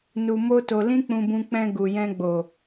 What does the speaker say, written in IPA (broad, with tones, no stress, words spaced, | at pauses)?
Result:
nu˧mo˦to˧ lĩ˦k͡pũ˧bũ˧ k͡pɛ̃˧ ɡu˨jɛ̃˧ɡ͡bo˨